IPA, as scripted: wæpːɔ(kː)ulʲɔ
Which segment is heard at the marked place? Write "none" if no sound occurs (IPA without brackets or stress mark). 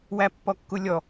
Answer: kː